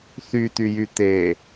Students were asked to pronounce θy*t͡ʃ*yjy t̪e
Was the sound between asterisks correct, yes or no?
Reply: no